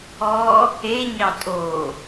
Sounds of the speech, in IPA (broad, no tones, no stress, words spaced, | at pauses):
ɔ | e ɲɑtʼo